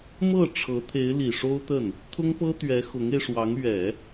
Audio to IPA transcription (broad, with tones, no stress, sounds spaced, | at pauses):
m ɤ˥˩ ʈ͡ʂʰ ɤ˧˥ t̪ʰ e˧˥ ɪ̯ l i˨˩ ʂ o˥ ʊ̯ t̪ ə˥˩ n | t̪ʰ ʊ˥ ŋ p ɤ˥ t̪ ɥ ɛ˧˥ x ʊ˧˥ ŋ e˧ ɪ̯ ʂ w ɑ˧˥ ŋ ɥ ɛ˨˩˦